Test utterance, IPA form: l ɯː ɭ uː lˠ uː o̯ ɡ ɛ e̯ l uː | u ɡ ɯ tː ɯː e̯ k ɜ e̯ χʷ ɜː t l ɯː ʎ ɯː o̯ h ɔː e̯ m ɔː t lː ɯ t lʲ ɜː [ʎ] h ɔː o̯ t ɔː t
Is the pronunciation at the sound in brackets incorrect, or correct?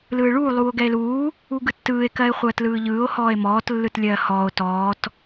incorrect: none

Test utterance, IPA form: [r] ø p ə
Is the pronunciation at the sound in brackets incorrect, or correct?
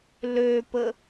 incorrect: l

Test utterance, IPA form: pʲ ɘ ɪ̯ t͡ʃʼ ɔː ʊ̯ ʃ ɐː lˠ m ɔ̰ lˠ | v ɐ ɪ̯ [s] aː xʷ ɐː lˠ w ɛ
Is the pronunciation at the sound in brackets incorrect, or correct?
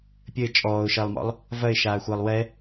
incorrect: ʃ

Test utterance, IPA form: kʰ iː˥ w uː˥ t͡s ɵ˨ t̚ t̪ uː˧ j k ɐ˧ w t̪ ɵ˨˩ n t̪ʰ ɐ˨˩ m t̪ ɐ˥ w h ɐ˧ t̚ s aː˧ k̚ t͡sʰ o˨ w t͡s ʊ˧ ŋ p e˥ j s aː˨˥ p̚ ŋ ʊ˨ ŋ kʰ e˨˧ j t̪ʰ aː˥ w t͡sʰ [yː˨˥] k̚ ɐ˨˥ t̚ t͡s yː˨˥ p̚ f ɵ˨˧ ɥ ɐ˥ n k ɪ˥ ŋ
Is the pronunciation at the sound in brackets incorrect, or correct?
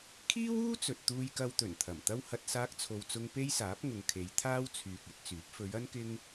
incorrect: yː˨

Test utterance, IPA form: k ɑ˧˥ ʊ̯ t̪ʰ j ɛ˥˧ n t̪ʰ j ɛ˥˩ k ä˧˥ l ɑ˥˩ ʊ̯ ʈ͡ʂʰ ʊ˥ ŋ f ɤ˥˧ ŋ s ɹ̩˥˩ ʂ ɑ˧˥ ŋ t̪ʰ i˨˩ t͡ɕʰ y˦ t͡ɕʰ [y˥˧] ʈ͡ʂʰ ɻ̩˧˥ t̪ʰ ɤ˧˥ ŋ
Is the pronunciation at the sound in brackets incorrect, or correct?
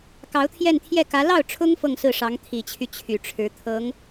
incorrect: y˨˩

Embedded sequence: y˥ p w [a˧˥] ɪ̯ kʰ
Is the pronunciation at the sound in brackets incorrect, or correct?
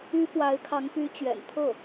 correct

